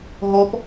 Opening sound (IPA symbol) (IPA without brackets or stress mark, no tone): ɦ